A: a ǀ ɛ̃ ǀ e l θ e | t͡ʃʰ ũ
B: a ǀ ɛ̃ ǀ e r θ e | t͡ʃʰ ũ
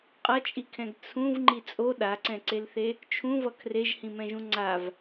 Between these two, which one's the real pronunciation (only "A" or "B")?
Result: A